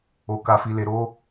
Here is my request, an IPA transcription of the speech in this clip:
o˨ k a˨ f i˨ l e˨ ɾ o˧

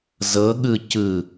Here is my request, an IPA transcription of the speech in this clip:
z ɤ ɠ ɯ c ɯ

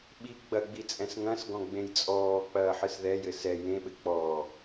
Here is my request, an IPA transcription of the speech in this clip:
ɓ i ɡ͡b ɐ ɡ͡b i t͡sʼ ɛ̃ s ŋ ɐ̃ s ɡ ɔ̃ ɡ͡b ẽ j t͡sʼ ɔː k͡p ɐː ħ ɨ s ð ɛ j ɘ s ɛ j ẽ ɓ ɘ k͡p ɔː

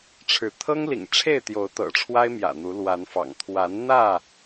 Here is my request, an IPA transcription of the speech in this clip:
ʈ͡ʂʰ ɻ̩˨˦ t̪ʰ ɤ˦ ŋ l ḭ˨˩ ŋ ʈ͡ʂʰ e˥˨ ɪ̯ t̪ j o˨˦ ʊ̯ t̪ ɤ̰˨˩ ʈ͡ʂʰ w a˦ ɪ̯ m j ä̰˨˩ n̪ u˨˦ l w a˨˦ n f ɑ̰˨˩ ŋ t̪ʰ w a˨˦ n n̪ ä˥˨

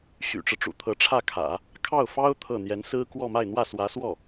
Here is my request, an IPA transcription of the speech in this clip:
ɕ y̰˨˩ ʈ͡ʂ ɻ̩˦ ʈ͡ʂ ṵ˨˩ t̪ʰ ɤ˧˥ ʈ͡ʂʰ ä˥˩ kʰ ä̰˨˩˦ | kʰ ɑ˥˩ ʊ̯ f ɑ˥ ʊ̯ t̪ʰ ɤ˥˩ n̪ j ɛ˧˥ n s ɹ̩˥ k w ɔ˥˧ m a˥˧ ɪ̯ n̪ w ä˥˩ s w ä˧˥ s w ɔ˥˩

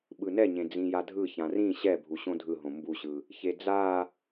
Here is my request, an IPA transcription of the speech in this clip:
ɓ ɯ n ɛ ɲ ẽ d͡z ĩ j a dʱ ɯ ç ã r ĩ ɕ ɛ bʱ u ɕ õ dʱ ɯ ɦ õ m b u ɕ ɯ | ç e d͡z a

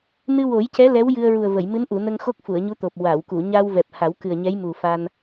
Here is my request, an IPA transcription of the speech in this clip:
n ɨ˧ w o˨˩˦ j c ɛ˧˥ l ɛ˧˥ w j ɨ˧ ə̯ ɹ u˨˩ ə̯ v ə˨˩˨ j m ɨ˧˥ n ʔ u˨˩˨ n ə˧ ŋ x o˦˥ k̚ f u˨˩˨ ə̯ ɲ u˧˥ t̪ o˨˩ p̚ w a˨˩˨ w k u˨˩˨ ɲ a˧ w v ɛ˨˩ p̚ h a˨˩˦ w k ɨ˨˩ ə̯ ɲ ɛ˧˥ j m u˨˩ f a˧ n

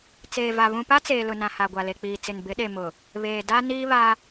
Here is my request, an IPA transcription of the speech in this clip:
t͡s eː˨ v a˨ β ũ˨ p a˦ t͡s eː˨ l ʊ˨ n ã˨ h a˨ ɡʷ a˨ l e˨ k͡p iː˨ t͡s ɪ˨ n b ɪ˨˦ ɗ e˨ m ʊ˨ | β eː˨ d a˦ n iː˦ β a˦

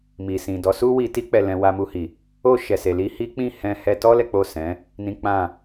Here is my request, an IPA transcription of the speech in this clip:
m i˨ s ĩ˨ d ɔ˨˦ s u˦ w i˧ t i˦ k͡p ɛ˧ l ɛ̃˧ w a˧ m u˧ h i˨ | o˧ ʃ ɛ˨ s e˨ l i˧ h i˦ k͡p ĩ˦˨ h ɛ̃˧ h ɛ˧ t ɔ˦ l ɛ˦ k͡p o˦˨ s ɛ̃˨˦ | n ĩ˦ k͡p ã˦˨

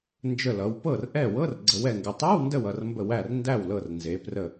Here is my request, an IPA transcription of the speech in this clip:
n d͡ʒ ə˧˩ l ʌ˩˧ w p ɤ˥˩ r ʔ ɛ˥˩ w ɤ˧˥˧ r ɡ͡ǀ ə˩˧ w ɛ˩ ŋ ɡ ə˩ tˤ ɛ˧˥˧ w n d ə˧˩ w ʌ˩ r m b ə˧˩ w æ˧˩ r n d æ˥˩ w l ɤ˧˩ r n z e˩˧ p r ə˧˩

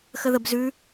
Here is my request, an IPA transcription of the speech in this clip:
x ə ð ə b z ʉ

